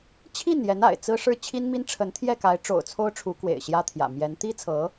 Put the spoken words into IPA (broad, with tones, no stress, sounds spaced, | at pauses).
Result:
t͡ɕʰ i˥˩ n j ɛ˧˥ n a̰˨˩ ɪ̯ t͡s ɹ̩˥ ʂ ɻ̩˥˩ t͡ɕʰ i˥ n m i˥ n ʈ͡ʂʰ ə˧˥ n t̪ʰ j ɛ˥˩ k a˧˥ ɪ̯ ʈ͡ʂ o̰˨˩ ʊ̯ t͡sʰ o˥ ʊ̯ ʈ͡ʂʰ u˧˥ k w ḛ˨˩ ɪ̯ ɕ j ä˥ t̪ʰ j ä̰˨˩ m j ɛ˧˥ n t̪ i˥ t͡sʰ ɤ˧˥